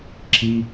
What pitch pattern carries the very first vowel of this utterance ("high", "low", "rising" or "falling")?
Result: high